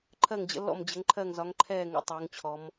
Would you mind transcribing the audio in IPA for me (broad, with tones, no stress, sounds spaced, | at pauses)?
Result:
ǃʰ ɜ˧˩ ŋ d͡ʑ ə̰˩˧ lː ɔ̰˧˩ m d͡ʑ ə˩˧ ŋ ǃʰ ɜ˧˩ ŋ z ɒ˩˧ ŋ ǃʰ ɛː˧˩ ŋ ə̰˩˧ tˤ oː˩˧ ŋ t͡ɕʰ ɔ˩˧ m